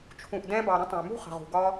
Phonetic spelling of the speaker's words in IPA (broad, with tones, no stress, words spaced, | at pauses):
t͡ʃʰũ˨ʔdɛ̃˧bɑ˨ ɾə̃˦tˤə̃˨y̯mṳ˦χə̤˨ ʁṳ˨ɡɒ˧